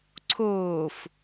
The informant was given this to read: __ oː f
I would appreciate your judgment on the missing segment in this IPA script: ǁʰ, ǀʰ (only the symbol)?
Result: ǀʰ